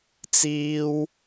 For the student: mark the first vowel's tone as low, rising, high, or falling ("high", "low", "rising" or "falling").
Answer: high